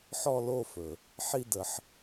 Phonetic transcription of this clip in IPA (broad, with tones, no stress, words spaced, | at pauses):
ħɔ˥˨lo˥˨fɵ˩ | ħi˥˨də˨˩˦ħ